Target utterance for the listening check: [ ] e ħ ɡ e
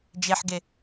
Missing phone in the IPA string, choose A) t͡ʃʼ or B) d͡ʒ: B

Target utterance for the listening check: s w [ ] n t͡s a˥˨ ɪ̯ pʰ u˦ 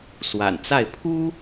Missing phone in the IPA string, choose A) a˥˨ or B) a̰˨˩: B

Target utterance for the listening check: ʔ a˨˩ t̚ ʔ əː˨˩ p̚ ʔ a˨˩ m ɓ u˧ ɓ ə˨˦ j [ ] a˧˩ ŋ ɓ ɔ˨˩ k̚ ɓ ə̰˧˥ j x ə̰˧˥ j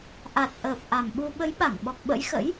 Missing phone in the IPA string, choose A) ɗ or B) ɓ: B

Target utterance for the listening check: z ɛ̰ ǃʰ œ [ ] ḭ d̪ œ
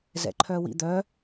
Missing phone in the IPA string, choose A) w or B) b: A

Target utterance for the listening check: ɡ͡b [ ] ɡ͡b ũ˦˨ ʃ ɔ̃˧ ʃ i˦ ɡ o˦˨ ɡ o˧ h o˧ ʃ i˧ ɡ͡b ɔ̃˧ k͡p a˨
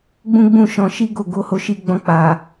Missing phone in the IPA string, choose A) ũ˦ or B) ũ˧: A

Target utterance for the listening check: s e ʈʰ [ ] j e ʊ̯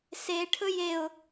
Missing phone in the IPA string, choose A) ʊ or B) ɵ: B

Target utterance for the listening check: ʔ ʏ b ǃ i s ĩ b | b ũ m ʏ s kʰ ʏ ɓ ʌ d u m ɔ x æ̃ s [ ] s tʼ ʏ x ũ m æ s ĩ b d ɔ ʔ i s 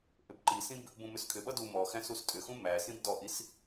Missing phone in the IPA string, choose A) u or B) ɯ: A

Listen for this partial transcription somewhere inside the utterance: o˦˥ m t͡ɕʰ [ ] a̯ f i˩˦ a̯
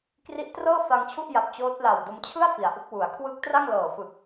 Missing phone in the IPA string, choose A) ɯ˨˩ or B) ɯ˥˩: B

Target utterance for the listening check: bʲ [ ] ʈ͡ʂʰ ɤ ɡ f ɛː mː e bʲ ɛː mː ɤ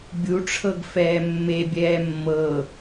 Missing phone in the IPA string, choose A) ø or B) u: B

